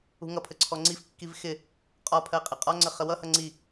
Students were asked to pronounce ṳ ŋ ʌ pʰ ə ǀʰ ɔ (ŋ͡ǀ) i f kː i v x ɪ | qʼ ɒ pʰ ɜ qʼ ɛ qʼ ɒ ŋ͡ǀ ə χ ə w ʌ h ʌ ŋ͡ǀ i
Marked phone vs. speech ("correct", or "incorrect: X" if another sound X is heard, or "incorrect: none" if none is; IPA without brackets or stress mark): correct